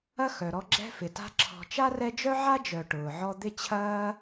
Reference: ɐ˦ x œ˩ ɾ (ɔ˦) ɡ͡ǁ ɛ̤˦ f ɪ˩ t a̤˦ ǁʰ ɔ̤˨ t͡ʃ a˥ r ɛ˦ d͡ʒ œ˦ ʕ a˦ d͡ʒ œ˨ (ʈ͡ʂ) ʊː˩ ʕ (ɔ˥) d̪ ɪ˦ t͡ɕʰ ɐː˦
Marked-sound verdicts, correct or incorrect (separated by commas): correct, incorrect, incorrect